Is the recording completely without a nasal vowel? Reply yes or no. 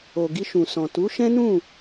no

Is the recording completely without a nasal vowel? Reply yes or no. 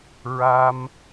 yes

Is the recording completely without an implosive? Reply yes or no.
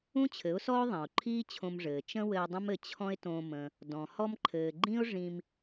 yes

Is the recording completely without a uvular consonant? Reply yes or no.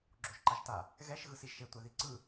yes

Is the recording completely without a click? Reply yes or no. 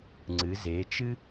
no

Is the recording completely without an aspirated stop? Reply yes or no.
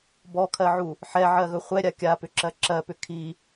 no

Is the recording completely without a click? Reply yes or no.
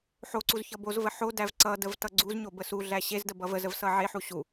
no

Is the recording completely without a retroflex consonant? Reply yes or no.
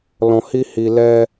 yes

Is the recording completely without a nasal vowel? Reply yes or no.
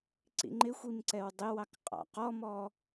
yes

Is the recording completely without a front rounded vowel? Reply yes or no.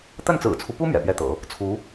yes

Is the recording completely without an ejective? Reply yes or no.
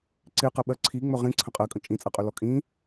no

